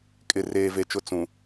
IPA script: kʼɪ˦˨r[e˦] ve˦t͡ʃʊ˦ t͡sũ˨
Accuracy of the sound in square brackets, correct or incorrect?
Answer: incorrect: eː˦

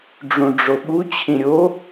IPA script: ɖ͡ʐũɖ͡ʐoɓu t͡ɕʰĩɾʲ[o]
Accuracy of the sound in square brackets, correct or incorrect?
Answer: correct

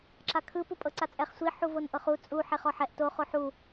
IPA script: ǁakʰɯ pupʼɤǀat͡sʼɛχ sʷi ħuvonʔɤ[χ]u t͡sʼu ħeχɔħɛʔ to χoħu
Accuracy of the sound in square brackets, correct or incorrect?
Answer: correct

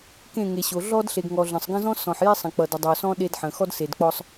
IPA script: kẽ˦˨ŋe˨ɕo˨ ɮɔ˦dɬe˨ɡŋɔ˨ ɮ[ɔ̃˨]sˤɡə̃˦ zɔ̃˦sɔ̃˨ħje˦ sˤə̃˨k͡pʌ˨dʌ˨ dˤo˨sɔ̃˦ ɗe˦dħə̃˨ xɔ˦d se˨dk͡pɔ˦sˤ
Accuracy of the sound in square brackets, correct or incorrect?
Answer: incorrect: ə̃˨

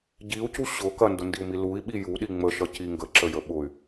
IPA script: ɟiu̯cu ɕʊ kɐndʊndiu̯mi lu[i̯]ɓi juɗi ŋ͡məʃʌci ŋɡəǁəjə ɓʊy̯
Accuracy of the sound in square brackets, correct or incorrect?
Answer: correct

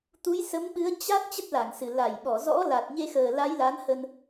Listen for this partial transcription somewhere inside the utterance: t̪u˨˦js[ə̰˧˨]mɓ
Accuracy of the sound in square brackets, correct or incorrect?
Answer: incorrect: ə˨˦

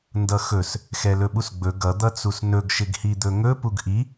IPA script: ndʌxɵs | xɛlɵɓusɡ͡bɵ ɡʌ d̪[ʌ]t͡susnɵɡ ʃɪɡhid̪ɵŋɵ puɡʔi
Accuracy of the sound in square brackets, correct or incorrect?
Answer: correct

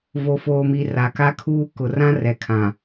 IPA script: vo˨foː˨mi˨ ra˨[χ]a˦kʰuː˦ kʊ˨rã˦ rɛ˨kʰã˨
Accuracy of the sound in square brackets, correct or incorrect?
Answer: incorrect: k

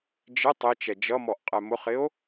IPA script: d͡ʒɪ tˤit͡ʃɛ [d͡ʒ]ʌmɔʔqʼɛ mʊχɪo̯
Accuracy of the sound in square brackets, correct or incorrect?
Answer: correct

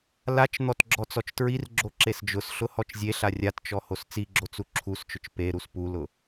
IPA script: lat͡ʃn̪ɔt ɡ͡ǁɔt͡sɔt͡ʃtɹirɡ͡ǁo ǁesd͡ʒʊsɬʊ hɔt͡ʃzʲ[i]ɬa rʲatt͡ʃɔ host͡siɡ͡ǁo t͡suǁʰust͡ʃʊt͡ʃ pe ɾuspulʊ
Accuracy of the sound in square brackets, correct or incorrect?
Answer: incorrect: e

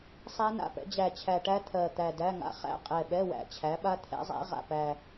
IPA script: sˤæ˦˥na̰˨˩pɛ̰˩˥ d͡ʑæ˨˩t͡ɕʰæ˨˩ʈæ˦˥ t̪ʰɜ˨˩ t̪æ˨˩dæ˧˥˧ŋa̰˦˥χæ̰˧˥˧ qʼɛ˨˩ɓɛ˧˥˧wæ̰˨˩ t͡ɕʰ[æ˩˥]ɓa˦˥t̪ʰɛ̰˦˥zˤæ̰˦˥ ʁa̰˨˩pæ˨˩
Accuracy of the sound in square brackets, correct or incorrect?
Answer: correct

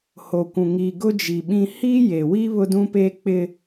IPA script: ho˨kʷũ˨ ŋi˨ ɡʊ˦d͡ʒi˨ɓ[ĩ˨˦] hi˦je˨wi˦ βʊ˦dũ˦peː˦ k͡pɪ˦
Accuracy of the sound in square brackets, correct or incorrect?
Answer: incorrect: ĩ˦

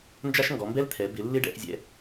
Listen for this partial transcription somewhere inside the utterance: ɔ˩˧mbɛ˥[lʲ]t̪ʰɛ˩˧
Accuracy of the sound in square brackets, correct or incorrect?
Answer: incorrect: l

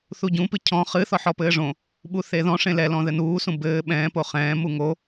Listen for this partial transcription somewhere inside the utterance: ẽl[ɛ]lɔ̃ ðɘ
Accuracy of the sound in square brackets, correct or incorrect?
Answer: correct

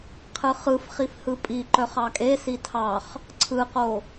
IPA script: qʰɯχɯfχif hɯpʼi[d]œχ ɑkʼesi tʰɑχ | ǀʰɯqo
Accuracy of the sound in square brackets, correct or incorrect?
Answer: incorrect: ǃ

